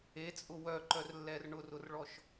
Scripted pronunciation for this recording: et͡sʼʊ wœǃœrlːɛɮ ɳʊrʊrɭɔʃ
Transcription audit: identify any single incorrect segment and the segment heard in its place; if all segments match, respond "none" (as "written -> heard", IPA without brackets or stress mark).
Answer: ɮ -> r